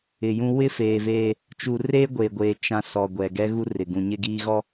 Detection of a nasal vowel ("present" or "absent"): present